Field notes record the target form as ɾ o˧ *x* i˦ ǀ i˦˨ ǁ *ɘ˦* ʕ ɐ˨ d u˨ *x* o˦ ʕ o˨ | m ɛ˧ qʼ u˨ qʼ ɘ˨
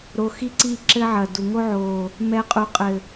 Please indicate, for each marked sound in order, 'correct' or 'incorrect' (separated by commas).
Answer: correct, correct, incorrect